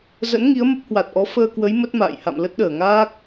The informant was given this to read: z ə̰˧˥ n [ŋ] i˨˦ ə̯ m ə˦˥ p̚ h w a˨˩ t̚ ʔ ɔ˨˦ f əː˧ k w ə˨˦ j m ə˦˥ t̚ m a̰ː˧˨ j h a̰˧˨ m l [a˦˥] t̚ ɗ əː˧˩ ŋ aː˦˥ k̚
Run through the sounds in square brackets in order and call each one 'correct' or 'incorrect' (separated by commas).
correct, incorrect